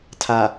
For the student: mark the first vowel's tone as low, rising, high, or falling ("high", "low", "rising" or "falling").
low